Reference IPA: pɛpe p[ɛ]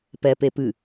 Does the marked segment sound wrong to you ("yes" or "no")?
yes